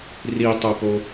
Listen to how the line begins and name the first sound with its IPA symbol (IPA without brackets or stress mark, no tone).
r